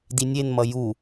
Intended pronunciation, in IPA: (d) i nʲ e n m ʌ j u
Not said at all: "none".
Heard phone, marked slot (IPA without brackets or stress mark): d